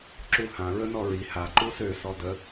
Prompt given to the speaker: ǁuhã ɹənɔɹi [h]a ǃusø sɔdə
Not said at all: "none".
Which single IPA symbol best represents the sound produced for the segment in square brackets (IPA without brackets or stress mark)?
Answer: h